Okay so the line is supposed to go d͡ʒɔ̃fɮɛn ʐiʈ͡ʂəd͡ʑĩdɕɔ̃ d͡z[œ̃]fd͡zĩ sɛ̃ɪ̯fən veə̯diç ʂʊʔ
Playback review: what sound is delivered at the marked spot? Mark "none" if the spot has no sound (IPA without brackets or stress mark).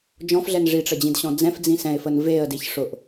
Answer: ɛ̃